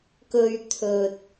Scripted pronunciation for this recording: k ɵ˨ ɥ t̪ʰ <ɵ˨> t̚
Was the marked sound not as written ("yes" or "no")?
no